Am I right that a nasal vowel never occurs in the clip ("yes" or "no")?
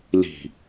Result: yes